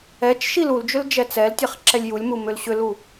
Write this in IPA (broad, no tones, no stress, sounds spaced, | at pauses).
ɛ t͡ʃ ʃ i l u l d͡ʒ ʏ l d͡ʒ ɛ t͡s ɛ l tʲ ɛ χ ǁ ɛ lʲ j u lʲ m u m ʏ l ɕ ʏ l u